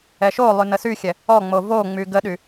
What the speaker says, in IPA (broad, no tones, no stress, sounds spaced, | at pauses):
ɛ ʃ o lˠ y n ə s y xʲ ɛ | ɔ ŋ͡m o v o ŋ͡m y ɡ ə ɗ y